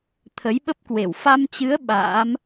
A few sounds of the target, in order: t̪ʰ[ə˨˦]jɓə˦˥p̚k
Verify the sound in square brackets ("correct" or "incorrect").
correct